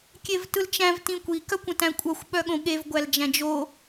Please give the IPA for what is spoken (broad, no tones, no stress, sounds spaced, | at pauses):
kʲ e v t ɯ l t͡ʃ æ̃ v t ĩ kʷ i k œ kʷ ə̃ t æ̃ kʷʼ œ xʷ ɓ œ ɠ õ ɠ e v ɡʷ æ l d͡ʒ æ̃ d͡ʒ o